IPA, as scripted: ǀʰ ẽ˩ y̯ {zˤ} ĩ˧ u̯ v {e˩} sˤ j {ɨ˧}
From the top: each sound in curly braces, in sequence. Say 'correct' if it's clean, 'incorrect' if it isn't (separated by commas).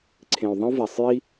incorrect, incorrect, incorrect